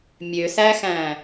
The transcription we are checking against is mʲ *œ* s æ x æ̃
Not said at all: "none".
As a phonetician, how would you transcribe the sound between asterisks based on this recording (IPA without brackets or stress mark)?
ø